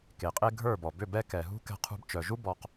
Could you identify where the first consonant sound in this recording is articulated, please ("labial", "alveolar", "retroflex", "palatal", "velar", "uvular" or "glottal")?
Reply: velar